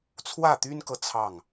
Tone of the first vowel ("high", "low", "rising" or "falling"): falling